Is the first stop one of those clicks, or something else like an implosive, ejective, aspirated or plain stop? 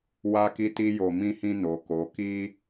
plain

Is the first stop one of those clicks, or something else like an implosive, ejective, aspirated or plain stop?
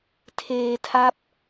aspirated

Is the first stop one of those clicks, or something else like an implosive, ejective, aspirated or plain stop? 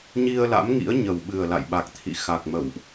implosive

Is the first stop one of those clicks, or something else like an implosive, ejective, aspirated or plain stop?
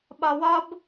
implosive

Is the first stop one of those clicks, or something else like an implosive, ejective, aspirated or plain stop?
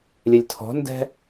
aspirated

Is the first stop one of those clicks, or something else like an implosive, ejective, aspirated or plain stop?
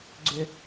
click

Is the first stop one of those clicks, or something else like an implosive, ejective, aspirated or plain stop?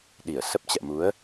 implosive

